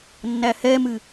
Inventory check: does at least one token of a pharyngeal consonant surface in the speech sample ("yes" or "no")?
no